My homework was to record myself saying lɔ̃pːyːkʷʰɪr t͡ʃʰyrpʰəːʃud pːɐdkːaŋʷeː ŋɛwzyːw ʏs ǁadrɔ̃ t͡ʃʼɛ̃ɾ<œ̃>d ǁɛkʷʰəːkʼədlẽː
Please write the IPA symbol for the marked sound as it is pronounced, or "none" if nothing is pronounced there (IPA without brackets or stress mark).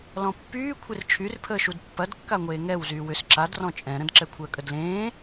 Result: ə̃